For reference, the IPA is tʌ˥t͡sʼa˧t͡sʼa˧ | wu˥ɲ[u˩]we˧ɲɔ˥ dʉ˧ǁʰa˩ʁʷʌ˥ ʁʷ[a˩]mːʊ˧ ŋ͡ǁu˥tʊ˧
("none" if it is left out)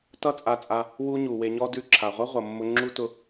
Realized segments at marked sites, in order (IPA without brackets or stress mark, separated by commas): u˩, ʌ˩